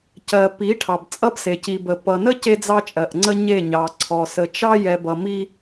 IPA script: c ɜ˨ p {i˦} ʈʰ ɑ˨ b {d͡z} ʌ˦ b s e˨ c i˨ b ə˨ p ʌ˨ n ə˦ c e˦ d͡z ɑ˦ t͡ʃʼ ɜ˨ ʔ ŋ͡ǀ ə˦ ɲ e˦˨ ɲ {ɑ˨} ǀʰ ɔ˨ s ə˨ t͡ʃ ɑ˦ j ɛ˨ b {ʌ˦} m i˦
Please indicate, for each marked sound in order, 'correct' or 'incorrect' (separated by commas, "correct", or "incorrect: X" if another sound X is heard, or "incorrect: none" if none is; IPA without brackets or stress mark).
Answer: incorrect: i˨˦, incorrect: t͡sʼ, correct, incorrect: ʌ˨